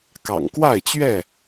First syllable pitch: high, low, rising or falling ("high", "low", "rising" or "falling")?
low